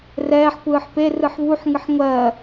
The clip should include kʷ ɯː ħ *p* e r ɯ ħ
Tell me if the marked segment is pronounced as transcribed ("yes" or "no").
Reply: yes